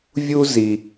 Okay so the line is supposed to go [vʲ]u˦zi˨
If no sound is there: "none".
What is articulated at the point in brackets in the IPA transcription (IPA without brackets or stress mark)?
vʲ